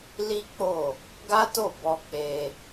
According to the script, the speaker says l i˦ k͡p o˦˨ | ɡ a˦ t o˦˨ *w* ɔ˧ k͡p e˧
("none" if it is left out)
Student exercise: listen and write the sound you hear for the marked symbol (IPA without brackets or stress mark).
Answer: b